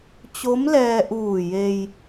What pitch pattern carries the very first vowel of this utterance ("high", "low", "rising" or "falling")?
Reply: rising